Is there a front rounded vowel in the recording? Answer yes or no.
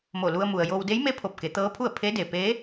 no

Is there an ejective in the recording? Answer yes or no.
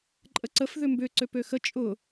yes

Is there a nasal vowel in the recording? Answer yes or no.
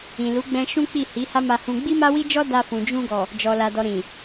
yes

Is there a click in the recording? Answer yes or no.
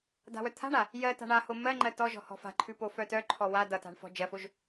yes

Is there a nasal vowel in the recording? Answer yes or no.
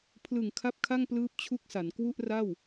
no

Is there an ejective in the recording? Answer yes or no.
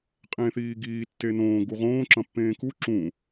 yes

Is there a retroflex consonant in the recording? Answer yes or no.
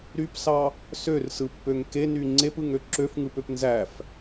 no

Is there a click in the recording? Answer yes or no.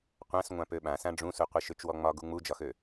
no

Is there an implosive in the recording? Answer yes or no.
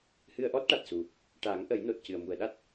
yes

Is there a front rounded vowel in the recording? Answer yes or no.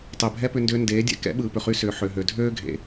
yes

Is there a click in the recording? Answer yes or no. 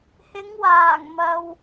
no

